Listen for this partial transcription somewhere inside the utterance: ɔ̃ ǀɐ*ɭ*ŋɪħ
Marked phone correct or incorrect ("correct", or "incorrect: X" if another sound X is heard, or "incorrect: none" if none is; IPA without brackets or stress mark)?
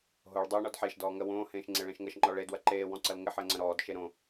incorrect: l